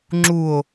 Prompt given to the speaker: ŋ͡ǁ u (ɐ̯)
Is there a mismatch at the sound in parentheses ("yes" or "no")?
yes